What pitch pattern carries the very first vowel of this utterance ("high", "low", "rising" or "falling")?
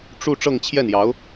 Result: falling